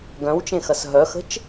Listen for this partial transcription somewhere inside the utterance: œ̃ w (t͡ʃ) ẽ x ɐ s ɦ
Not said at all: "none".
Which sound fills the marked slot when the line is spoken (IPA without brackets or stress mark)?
t͡ʃ